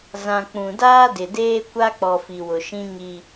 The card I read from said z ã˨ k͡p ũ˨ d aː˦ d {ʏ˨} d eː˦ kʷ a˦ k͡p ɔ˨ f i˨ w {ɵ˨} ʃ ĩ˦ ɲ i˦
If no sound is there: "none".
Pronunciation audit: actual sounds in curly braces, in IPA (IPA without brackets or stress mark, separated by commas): ɪ˨, ʊ˨